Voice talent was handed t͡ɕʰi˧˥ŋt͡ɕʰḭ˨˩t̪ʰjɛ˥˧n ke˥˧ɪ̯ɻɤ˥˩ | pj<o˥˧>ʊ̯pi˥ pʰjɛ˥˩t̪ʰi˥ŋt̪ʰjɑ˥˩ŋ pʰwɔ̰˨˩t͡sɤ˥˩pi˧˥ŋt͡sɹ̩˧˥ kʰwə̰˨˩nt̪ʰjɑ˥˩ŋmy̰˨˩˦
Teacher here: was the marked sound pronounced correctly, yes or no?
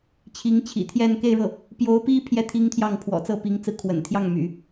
no